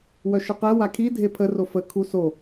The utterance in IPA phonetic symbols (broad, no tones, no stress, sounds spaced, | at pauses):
w œ ʃ ə q ɛ w a kʰ i dʱ e pʰ ə r o f ə kʰ u s o